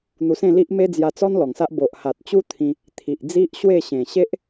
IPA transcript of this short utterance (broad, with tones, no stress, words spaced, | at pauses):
n̪u˧sẽ˥˧li˦ʔme˦ d͡zja˧ t͡sɔ˦n lɔ˨˩ŋsa˦ʔ bo˨ʔha˨t̚t͡ɕu˦ t̪ʰĩ˧ | t̪ʰi˨ʔ d͡zi˦ʔɕwe˥˧ ɕẽ˨˩ɕe˦ʔ